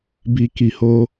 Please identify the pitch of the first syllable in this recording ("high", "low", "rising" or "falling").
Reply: low